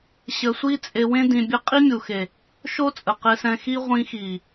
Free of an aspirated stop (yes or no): yes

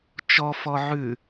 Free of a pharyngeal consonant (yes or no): no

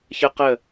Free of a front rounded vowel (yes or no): yes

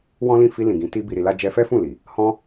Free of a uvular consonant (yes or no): yes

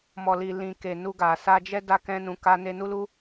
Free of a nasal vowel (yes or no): no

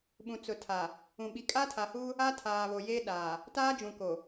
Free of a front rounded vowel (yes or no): yes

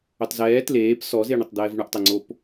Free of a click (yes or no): no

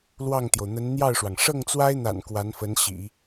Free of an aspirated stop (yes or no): yes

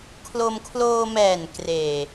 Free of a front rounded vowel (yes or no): yes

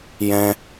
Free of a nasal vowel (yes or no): no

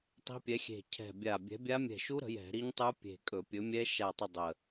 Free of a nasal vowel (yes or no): yes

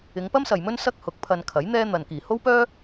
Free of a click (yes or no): yes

